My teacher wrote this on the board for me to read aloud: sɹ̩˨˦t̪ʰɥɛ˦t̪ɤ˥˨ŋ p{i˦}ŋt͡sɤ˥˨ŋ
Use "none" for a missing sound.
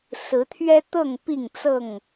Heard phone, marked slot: i˥˨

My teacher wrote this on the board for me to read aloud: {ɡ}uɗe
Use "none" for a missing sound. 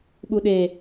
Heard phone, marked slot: ɓ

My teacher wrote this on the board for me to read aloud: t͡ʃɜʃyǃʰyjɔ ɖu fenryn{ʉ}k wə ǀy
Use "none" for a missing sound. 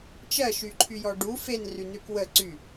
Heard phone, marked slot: ʉ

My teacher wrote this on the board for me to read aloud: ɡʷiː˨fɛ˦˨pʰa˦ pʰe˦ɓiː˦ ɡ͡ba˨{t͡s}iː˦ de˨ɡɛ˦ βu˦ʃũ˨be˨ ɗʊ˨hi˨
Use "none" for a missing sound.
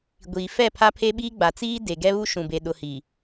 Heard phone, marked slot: t͡s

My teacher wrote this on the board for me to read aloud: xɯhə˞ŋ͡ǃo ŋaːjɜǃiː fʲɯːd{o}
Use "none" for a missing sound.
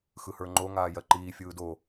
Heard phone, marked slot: o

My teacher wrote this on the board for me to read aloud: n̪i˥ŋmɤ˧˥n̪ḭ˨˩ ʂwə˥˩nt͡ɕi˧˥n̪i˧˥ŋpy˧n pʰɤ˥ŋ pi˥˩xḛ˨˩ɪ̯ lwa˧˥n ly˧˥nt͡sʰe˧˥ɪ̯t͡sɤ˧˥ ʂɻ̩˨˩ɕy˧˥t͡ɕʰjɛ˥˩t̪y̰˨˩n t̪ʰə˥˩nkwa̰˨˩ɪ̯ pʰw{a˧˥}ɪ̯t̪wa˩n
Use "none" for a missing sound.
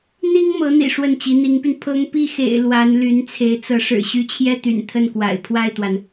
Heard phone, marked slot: a˥˩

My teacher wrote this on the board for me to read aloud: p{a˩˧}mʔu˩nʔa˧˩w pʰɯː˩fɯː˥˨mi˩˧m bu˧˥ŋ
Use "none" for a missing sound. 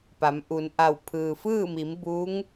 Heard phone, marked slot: a˩˧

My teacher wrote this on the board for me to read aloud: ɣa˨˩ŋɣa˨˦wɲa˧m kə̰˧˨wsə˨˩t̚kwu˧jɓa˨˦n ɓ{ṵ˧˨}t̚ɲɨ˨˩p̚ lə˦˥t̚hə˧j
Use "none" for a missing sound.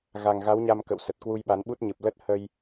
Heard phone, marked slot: u˦˥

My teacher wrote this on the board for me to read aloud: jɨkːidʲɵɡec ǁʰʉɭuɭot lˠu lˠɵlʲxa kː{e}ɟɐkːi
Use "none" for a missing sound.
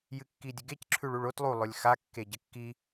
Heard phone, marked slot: e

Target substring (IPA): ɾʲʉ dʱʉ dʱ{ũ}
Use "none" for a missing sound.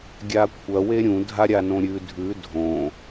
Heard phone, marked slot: õ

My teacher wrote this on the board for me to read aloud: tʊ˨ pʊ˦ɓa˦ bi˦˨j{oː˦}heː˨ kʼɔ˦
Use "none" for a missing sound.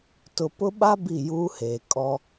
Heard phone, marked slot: uː˦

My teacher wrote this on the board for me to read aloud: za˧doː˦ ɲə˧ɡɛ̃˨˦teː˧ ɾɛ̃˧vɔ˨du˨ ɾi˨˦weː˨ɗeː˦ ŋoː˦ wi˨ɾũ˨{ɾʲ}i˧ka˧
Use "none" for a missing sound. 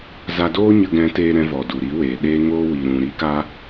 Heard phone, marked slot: ɾ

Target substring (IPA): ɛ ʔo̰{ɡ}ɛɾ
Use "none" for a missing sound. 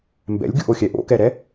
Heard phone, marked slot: k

